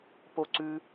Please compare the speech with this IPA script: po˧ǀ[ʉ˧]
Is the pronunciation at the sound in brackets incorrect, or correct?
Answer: correct